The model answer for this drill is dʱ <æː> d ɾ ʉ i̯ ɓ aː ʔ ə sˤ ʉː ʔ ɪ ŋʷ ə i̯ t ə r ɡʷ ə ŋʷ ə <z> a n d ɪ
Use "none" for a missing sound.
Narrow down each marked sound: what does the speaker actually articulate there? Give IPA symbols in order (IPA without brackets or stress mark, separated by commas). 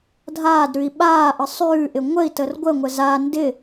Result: aː, z